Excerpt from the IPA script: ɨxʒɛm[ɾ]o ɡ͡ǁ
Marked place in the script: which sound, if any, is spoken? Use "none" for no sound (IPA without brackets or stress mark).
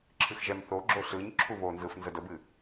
θ